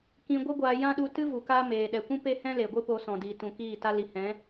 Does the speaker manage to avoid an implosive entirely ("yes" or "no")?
no